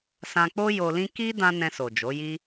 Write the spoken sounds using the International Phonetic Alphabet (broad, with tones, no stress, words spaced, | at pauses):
sã˧k͡po˦ jo˧lĩ˦ ki˦ dã˦ nɛ̃˧so˨ d͡ʒo˨˦ji˦